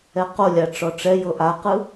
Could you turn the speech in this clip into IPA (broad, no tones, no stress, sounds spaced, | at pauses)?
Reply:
ɛ q o lʲ a ʈ͡ʂ ɔ ʈ͡ʂ ɛ j ɤ ʔ a q ɯ